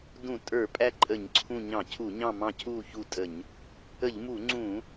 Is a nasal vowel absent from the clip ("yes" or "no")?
no